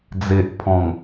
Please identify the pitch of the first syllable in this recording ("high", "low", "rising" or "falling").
low